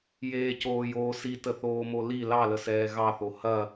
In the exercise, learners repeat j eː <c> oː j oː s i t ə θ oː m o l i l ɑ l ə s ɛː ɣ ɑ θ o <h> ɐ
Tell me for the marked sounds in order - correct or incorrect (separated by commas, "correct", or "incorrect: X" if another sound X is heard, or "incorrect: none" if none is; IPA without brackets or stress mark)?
correct, correct